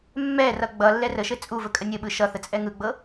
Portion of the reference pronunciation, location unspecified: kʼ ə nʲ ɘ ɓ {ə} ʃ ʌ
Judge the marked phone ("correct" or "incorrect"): incorrect